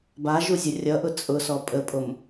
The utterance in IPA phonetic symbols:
baʒuzʲɐ rʲʌʔʊ t͡sʼʊsɔ pʼəpʼom

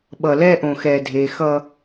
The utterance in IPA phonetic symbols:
ɓʌ˨lɛː˦ ʔõ˨xɛː˨ dʱeː˨xʌ˦

